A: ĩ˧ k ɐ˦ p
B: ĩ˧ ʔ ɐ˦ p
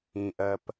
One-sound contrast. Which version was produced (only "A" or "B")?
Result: B